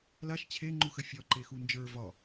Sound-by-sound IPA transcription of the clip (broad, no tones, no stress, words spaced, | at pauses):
laʃ t͡ɕʰe ŋ͡ǃuxəfʲɒ ǃexund͡ʒə˞ vɒ